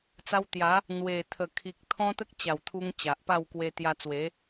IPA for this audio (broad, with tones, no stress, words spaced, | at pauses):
t͡sa˧wt̪ja˨˦ | n̪we˨˩ t̪ʰə˨˩kʰi˨k̚ t̪ʰɔ̃˦t̪ə˦k̚t͡ɕa˨˩w t̪ʰu˧ŋ t͡ɕa˨ʔpa˥˧w kwe˧ t̪ja˧t͡swe˨˦